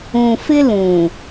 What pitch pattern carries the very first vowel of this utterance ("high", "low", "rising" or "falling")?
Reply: low